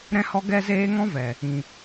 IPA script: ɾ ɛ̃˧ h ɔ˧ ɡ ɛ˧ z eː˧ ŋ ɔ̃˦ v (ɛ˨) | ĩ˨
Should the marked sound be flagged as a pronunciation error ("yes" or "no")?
no